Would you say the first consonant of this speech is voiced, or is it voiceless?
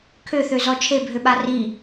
voiceless